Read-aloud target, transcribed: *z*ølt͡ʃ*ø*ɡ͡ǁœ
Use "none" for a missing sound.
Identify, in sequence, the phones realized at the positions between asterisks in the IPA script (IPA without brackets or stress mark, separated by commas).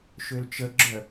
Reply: ʃ, ə